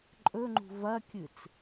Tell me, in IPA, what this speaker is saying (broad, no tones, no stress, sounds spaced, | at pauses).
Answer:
ǃʼ ɵ ŋ͡ǃ ṳ v ɐ kʲ ɨ t͡s